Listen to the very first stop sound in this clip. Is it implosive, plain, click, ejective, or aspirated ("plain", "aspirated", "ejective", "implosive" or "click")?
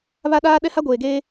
implosive